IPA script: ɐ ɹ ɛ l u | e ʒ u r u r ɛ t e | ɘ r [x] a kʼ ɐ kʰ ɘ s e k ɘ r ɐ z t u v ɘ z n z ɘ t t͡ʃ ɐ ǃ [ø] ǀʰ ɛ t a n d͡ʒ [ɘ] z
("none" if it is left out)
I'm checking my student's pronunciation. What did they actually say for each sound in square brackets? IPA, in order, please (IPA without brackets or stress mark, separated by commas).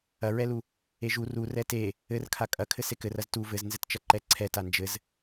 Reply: kʰ, ɛ, ɘ